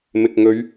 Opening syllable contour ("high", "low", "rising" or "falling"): low